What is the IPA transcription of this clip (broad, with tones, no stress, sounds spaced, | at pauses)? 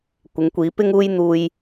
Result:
kʷ ɪ˨˥ ŋ kʷ iː˨˥ p ɪ˥ ŋ uː˥ j n̪ uː˧ j